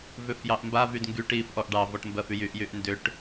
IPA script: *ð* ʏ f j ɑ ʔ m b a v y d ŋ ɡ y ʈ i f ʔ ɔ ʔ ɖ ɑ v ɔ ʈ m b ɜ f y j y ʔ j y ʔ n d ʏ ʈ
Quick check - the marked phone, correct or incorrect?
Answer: incorrect